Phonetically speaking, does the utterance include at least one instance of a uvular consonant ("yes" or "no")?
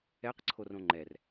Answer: yes